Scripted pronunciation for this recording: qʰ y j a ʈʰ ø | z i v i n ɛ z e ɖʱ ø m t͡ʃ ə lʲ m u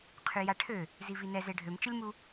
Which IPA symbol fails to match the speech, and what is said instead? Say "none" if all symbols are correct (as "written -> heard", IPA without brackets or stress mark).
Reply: none